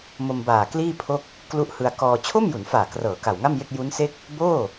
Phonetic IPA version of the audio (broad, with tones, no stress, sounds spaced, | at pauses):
m o˧ m b aː˨˩ k l iː˥˩ pʰ o˥˩ k̚ | k l u˦˥ ʔ h ɯ˧ a̯ k ɔː˧ t͡ɕʰ o˥˩ m j u˩˦ n f aː˨˩ k r ɤː˩˦ k a˨˩ w ŋ a˥˩ m j e˥˩ k̚ j u˦˥ n s e˥˩ k̚ | b oː˥˩